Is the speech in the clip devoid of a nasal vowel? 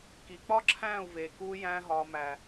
no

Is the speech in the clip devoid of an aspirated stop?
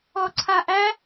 no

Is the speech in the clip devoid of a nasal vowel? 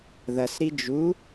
yes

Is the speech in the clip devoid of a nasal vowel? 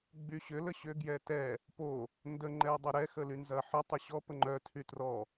yes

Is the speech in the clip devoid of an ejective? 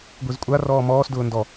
no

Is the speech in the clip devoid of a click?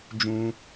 yes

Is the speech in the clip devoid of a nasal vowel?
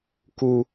yes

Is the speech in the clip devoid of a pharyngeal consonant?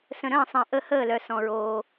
yes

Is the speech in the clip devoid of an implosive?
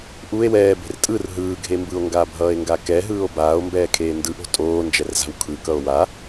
yes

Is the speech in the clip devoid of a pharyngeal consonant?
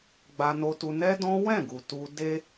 yes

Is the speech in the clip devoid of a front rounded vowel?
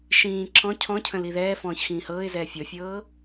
yes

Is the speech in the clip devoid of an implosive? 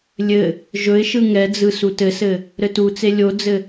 yes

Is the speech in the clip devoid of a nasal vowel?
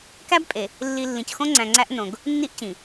no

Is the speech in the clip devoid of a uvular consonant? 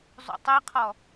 no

